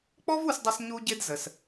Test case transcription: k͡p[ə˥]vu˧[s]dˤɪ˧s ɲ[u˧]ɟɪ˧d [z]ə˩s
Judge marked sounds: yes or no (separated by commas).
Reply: no, yes, yes, yes